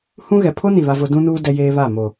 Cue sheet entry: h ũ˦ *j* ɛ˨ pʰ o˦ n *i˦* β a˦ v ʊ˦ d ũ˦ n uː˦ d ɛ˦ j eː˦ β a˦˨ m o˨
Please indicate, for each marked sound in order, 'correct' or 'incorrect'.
incorrect: ɣ, incorrect: i˨

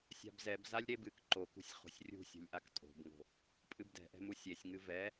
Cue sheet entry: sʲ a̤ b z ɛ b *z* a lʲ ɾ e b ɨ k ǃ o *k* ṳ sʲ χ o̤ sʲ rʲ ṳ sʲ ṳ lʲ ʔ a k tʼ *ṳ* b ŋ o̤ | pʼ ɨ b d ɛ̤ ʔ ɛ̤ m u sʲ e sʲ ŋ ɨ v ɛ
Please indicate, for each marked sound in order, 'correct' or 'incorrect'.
correct, correct, incorrect: o̤

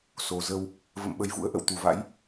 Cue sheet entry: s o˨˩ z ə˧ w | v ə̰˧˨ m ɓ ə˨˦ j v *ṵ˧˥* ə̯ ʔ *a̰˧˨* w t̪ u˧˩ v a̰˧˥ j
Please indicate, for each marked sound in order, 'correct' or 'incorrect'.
correct, incorrect: ə̰˧˨

